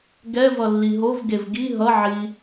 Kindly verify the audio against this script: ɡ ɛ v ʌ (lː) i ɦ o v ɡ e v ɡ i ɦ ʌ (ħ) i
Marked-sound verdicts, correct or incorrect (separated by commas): correct, incorrect